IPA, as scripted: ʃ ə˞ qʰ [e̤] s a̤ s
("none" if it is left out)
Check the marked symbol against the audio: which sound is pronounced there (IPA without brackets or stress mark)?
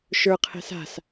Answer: ɛ̤